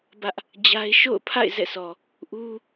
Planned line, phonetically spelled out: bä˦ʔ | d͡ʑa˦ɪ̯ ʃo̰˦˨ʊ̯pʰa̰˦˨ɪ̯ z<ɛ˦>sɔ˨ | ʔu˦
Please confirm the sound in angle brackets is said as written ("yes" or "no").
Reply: no